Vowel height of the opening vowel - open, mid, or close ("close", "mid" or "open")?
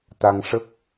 open